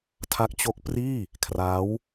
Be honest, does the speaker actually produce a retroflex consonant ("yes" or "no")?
no